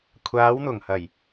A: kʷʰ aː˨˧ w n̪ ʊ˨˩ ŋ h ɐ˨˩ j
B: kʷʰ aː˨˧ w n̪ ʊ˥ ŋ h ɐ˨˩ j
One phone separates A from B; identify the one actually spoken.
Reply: A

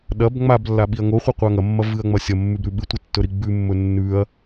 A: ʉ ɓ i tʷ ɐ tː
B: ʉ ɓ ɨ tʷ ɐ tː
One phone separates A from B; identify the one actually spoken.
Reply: B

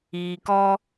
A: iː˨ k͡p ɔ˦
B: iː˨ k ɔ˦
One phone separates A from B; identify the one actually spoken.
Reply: B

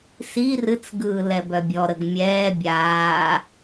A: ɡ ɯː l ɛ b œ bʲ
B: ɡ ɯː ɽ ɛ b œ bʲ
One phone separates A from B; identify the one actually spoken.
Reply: A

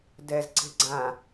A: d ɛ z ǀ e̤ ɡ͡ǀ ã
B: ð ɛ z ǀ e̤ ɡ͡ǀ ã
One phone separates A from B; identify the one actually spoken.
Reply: A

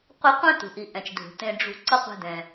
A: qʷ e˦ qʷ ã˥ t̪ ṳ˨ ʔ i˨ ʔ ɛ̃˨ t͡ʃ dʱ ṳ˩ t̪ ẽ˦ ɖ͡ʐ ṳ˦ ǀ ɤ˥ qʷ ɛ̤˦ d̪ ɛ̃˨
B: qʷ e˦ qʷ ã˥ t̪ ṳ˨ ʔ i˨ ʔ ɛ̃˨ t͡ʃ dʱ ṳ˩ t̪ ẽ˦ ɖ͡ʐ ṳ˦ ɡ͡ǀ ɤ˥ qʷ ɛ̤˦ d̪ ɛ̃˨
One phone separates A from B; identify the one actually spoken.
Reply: A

